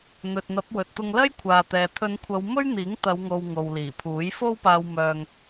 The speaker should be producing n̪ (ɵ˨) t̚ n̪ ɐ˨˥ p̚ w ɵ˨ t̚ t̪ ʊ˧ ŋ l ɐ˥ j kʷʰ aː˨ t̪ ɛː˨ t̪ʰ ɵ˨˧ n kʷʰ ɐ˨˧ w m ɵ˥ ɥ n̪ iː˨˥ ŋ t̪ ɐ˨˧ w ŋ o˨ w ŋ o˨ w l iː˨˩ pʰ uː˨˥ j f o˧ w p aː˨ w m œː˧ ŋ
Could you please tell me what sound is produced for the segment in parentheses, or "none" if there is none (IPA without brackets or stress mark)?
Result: ɵ˨